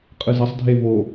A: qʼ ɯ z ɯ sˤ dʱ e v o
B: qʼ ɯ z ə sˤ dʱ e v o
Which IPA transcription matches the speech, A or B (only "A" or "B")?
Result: B